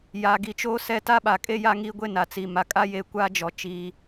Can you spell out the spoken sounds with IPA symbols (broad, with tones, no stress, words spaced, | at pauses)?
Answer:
ja˨ɡi˨t͡ʃoː˦ sɛ˦ ta˦ɓa˨kʼe˦ ja˦ŋiː˦ɡʷe˦ na˨t͡si˨ ma˨kʼa˦je˨ kʷa˦d͡ʒɔ˨ t͡ʃiː˦